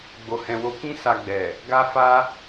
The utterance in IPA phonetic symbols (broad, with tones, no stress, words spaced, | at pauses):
ɡ͡bo˧hɛ̃˧wo˦ kĩ˦ sa˧ɡ͡bɛ˨ | ɡa˦fa˦